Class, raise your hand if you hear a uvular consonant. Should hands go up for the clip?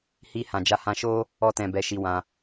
no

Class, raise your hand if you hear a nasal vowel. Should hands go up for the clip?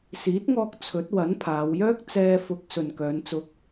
no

